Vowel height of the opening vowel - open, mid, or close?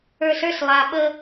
mid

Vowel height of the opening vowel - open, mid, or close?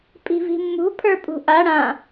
close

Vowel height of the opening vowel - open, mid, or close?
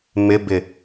close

